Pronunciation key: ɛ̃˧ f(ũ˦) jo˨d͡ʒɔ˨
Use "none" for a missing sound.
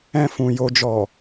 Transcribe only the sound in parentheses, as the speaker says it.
ũ˨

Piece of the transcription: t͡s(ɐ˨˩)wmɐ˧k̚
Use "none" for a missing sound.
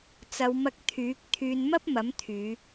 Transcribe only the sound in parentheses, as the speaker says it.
ɐ˨˧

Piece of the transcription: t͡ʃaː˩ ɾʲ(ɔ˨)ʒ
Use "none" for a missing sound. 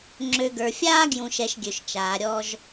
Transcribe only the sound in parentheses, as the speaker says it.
ɔ˨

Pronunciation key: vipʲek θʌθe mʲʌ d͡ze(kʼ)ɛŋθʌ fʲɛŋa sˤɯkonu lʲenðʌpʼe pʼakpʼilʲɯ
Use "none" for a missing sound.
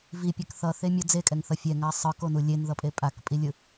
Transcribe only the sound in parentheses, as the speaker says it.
kʼ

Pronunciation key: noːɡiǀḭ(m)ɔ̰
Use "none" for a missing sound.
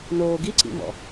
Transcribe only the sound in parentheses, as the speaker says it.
m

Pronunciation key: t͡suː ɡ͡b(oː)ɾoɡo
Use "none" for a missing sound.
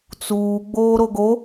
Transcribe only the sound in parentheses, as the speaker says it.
oː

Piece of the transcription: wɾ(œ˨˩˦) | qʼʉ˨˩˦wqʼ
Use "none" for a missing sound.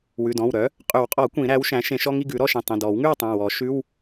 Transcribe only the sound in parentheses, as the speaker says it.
œ˩˥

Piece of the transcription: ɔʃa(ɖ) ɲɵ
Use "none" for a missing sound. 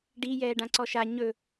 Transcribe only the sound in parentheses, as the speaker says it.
none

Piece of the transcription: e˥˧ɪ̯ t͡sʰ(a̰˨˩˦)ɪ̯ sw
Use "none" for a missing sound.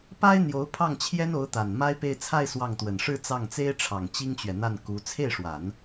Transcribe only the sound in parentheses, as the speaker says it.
a˥˧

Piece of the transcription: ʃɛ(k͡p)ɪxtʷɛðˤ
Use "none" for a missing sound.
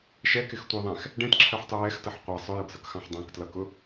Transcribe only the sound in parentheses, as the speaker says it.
k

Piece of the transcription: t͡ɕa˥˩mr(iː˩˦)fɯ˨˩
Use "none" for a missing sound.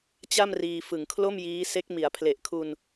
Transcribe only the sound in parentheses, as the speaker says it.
iː˧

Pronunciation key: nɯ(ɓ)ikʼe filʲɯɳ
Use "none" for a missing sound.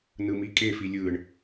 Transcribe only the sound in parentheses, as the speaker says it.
m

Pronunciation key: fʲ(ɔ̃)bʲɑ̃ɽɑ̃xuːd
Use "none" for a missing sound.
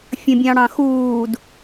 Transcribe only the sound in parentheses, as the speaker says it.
ə̃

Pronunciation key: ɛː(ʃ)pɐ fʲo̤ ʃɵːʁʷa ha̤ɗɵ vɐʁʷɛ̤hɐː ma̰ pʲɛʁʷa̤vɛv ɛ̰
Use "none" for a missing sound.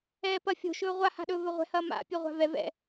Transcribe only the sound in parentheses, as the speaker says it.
none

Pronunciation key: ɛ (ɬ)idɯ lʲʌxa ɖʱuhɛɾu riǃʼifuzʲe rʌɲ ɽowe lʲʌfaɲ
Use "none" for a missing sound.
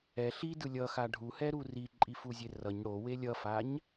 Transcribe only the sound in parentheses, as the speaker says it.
ɬ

